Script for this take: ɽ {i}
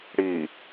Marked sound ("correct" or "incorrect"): correct